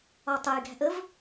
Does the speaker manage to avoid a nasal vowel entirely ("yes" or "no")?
yes